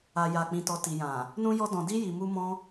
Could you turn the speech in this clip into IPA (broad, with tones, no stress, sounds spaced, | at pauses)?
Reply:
a˨ j a˨ k͡p ĩ˨ t ɔ˨ t i˨ j ã˨ | n ũ˧ j ɔ˧ d ɔ̃˨ d i˧ j i˨ m u˧ m ɔ̃˧